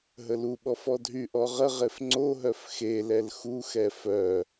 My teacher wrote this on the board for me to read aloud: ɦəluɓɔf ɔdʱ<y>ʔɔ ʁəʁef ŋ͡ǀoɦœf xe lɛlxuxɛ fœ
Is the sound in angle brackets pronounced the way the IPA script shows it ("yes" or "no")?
yes